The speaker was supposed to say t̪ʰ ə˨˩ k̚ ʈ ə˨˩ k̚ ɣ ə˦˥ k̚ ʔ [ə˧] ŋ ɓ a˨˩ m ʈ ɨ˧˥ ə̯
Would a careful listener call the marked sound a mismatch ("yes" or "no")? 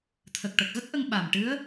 no